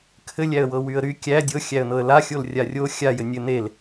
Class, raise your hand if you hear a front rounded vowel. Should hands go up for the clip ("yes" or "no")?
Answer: yes